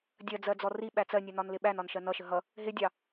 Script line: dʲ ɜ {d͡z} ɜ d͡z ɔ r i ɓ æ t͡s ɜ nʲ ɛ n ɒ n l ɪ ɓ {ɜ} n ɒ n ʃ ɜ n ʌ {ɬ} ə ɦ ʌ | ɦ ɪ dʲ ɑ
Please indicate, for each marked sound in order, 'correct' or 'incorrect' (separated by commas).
correct, incorrect, incorrect